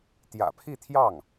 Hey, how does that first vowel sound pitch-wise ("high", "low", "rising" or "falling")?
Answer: low